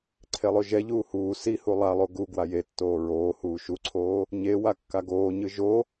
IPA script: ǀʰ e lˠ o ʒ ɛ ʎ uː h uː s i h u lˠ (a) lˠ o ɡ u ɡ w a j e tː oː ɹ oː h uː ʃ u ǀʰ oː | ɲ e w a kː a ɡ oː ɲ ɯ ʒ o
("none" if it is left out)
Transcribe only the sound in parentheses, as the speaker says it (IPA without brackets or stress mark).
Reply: a